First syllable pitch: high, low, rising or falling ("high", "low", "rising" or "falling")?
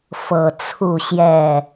low